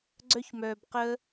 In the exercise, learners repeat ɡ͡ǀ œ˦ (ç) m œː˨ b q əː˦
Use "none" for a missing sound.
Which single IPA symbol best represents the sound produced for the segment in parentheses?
ç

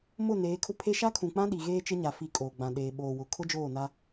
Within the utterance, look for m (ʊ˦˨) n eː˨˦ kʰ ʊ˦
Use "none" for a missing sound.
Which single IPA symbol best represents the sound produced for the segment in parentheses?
ʊ˦˨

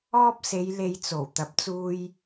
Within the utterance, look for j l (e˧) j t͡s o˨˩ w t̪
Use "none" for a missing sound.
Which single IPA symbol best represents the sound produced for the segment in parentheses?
e˧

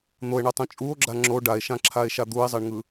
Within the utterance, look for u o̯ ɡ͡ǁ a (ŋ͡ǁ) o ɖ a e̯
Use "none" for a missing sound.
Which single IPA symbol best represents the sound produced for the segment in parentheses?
ŋ͡ǁ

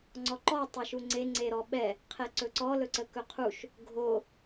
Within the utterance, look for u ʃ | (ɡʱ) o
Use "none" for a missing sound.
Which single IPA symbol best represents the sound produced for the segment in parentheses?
ɡʱ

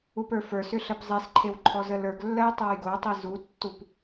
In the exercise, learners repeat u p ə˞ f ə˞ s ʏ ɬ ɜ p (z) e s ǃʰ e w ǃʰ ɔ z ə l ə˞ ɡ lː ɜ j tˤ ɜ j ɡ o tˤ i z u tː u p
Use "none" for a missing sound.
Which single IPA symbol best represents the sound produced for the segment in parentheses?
zˤ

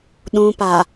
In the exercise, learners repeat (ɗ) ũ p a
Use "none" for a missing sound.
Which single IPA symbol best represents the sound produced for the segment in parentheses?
ɗ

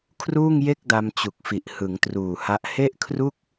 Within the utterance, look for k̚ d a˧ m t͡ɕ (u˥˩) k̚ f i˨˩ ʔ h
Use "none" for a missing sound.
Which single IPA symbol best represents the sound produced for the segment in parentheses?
u˨˩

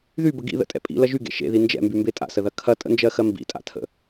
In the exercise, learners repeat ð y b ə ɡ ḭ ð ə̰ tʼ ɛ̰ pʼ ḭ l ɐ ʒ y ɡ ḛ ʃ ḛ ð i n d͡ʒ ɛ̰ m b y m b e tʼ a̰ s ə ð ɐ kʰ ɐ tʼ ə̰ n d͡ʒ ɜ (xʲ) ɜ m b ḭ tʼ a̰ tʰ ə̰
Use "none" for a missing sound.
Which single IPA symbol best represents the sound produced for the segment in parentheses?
x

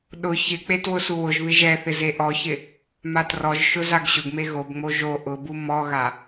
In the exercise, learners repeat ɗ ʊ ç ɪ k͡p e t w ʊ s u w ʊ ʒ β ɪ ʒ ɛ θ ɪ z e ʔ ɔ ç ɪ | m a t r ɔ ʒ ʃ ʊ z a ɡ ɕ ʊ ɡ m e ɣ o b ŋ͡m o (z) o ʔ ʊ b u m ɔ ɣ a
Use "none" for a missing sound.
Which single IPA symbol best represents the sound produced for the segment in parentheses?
ʒ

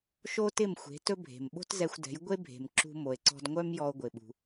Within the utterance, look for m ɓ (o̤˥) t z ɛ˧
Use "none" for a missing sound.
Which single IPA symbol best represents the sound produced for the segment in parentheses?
o̤˥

